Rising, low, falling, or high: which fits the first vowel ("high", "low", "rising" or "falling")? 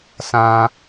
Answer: low